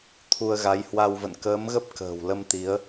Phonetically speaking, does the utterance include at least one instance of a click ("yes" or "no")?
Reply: no